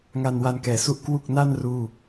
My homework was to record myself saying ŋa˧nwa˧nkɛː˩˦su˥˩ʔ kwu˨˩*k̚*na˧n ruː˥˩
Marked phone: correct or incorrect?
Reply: correct